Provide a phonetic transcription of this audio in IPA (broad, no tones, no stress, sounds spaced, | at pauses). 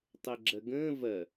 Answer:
tˤ ɛ ɡ͡ǁ ɐ ɡ ə̃ː v ɐ